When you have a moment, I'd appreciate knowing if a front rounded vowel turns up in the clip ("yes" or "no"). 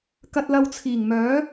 yes